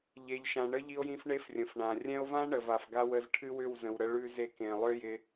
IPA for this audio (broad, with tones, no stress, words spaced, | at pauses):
ʎe˨ʎʃã˨ ɳə˦ʎi˧o̯jĩ˧f ɳe˦frʲə̃˨fɳã˨ rʲɛ̃˧o̯vã˦ ɳə˨va˨fɡa˦wə˧z ʈʰɨ˦wʏ˦˨wzə̃˨wɾə˧ ɭʉ˧ze˧ kẽ˨lˠʏ˦ jɪ˧